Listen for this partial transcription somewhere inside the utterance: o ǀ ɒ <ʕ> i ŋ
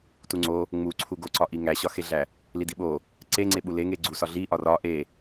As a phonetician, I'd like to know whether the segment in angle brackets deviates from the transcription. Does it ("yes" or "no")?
yes